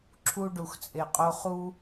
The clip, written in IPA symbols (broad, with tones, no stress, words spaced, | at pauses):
ǁʰu˦ ɖu˨xt͡sʼe˨qʼo˦χu˦